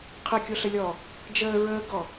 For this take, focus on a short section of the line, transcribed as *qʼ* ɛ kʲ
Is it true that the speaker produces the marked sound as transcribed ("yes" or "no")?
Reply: no